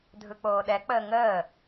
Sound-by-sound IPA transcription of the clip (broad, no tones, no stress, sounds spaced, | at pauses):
dʱ ɯ k͡p oː ɗ ɛ k͡p əː ŋ əː